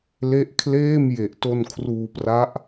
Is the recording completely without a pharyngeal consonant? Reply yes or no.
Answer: yes